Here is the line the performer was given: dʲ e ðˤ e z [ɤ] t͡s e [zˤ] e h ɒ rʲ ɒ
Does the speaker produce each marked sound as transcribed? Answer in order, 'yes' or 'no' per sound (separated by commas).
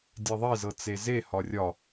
yes, no